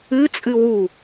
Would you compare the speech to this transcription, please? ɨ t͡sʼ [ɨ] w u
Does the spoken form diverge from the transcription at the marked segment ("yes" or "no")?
no